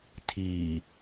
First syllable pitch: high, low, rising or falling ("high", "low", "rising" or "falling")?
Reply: low